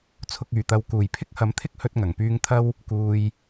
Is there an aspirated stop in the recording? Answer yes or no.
yes